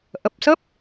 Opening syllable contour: low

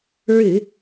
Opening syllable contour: low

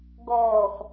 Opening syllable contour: low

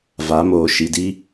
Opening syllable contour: rising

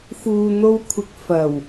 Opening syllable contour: low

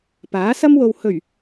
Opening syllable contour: rising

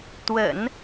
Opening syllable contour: low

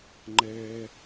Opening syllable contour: high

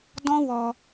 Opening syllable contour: high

